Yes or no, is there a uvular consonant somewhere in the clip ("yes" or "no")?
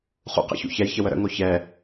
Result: yes